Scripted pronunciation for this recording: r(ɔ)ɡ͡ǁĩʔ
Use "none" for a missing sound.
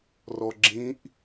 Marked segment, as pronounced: ɔ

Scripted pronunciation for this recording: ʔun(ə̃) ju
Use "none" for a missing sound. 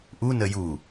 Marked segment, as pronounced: ə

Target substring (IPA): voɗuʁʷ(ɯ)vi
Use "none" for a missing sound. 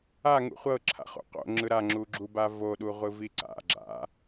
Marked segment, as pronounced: ɯ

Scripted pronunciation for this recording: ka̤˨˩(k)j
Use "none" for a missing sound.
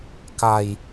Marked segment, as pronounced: none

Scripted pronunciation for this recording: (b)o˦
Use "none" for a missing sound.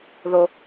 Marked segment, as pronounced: ð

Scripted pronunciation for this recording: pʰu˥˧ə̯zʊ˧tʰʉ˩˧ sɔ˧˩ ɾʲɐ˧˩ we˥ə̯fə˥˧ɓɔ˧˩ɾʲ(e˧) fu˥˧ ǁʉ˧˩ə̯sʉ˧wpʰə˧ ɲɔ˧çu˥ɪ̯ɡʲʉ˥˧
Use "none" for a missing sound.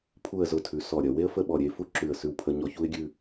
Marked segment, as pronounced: e˧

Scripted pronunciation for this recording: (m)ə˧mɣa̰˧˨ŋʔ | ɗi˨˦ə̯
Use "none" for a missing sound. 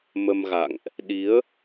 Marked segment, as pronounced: m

